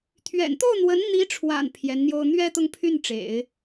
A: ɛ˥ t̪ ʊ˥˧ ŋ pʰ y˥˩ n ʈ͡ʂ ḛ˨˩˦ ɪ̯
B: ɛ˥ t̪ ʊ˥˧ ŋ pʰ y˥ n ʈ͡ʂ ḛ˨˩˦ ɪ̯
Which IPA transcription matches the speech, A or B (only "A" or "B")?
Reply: A